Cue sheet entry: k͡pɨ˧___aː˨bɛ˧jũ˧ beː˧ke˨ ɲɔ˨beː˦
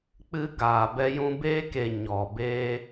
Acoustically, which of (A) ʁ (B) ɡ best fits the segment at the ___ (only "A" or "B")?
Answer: B